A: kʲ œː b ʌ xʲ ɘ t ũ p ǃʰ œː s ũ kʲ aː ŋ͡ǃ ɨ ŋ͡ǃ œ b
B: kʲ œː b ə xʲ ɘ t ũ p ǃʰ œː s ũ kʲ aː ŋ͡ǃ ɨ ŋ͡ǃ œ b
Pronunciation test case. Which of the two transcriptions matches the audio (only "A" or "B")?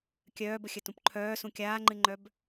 B